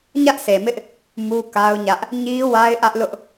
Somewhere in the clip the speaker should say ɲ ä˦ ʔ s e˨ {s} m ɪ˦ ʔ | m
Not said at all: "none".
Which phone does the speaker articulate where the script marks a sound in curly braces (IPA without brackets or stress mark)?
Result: none